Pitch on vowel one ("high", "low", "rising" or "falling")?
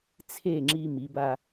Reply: falling